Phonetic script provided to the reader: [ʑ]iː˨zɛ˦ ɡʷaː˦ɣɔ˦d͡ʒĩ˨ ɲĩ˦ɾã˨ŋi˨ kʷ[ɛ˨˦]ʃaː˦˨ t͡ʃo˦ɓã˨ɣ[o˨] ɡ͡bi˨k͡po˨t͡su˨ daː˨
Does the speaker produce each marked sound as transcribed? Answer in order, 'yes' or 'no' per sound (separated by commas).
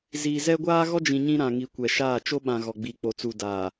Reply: no, no, no